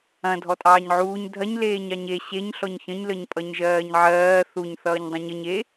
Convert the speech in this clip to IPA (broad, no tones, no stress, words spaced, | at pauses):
ɐ̃ dʱɔtʼɑːɲʕuːɲ dʱɐɲ leːɲɑɲe ɕeɲ ɬɔɲçə̃ɲ ləɲpʼʌɲʒɜːɲʕɜː θuɲ θʌːɲdˤɐ̃ɲəɲ e